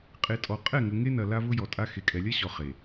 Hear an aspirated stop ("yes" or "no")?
no